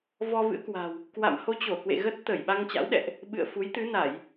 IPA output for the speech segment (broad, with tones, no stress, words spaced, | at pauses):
vɔ˧vɨ̰˧˥ə̯kwa̤˨˩w | kwa̰˧˨mho˧t͡ɕo˧˩kwḛ˧˨ ɣə˦˥t̚t̪ə˧˩j ɓa˧ŋt͡ɕa̰˧˥wɗɛ̰˧˨ʔ | ɓɨ̰˧˨ə̯fu˨˦j t̪ɨ˨˦na˧˩˨j